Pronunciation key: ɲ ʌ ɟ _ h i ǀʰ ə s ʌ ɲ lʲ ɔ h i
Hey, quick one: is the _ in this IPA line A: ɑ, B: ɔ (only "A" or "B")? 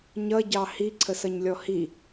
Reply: A